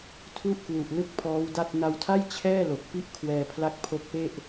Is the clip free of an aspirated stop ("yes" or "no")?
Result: no